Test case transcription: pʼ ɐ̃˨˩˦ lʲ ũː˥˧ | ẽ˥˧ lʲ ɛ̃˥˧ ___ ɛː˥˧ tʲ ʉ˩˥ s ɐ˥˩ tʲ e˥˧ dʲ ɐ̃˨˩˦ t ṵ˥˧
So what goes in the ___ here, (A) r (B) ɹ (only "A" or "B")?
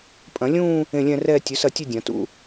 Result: A